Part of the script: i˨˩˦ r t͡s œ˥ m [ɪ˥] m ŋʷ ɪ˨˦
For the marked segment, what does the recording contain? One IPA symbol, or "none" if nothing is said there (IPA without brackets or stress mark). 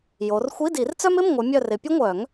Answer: ɪ˧˥˧